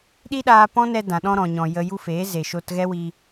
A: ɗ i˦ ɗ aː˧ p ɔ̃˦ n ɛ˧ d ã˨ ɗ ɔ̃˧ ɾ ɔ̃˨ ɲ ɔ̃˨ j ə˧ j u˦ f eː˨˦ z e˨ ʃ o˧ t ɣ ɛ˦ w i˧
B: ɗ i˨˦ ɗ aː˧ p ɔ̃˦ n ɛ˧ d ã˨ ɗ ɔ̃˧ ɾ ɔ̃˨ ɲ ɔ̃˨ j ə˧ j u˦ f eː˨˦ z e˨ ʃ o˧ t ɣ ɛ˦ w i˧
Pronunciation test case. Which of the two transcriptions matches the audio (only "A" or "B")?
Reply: A